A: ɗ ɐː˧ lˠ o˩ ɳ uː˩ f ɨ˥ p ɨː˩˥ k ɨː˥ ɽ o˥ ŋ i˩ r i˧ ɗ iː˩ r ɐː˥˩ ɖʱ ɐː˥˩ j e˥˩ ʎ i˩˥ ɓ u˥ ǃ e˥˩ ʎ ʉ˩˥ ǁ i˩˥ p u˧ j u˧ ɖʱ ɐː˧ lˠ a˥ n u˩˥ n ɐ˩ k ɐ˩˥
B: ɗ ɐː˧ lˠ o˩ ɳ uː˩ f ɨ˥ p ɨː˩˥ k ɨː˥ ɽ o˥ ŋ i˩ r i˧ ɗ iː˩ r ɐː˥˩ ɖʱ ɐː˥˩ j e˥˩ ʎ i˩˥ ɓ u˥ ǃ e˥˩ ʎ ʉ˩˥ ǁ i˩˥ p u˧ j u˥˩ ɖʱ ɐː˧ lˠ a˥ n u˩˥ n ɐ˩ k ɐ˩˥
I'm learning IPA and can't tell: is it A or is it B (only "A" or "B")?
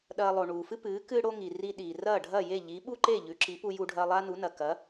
A